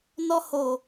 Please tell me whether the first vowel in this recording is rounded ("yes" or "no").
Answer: yes